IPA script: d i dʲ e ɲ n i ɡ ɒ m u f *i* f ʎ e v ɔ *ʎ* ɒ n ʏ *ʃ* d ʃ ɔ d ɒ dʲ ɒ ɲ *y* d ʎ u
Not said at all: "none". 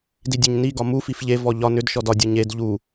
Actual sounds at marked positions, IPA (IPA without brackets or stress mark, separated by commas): i, ʎ, none, e